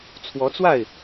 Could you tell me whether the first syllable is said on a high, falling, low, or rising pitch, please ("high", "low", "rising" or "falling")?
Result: rising